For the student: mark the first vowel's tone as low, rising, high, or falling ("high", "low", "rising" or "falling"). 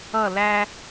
falling